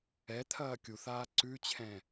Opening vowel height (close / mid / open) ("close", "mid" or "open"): mid